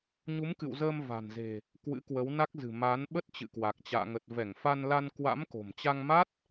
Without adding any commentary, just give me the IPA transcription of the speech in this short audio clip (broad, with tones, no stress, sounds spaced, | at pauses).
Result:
ɲ u˨˦ m k ɨ̰˧˨ w z əː˧ m v a̤˨˩ n z e̤˨˩ | k w ɨ̰˧˥ k w ə˨˦ w n a˦˥ k̚ z ɨ̤˨˩ m a˨˦ n ɓ ə˦˥ t̚ t͡ɕ ɨ̰˧˨ k w a˨˩ k̚ t͡ɕ a̰ː˧˨ ŋ ə˨˩ t̚ v ɛ˧˩ ŋ f a˧ n l a˧ n k w a̰˧˥ m k o̤˨˩ m t͡ɕ a˧ ŋ m a˦˥ t̚